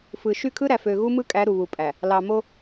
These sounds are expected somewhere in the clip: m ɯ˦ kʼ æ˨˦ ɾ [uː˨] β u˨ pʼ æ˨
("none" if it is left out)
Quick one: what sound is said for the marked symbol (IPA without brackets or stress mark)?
u˨